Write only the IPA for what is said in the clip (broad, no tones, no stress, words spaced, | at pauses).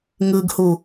ŋɯɡhu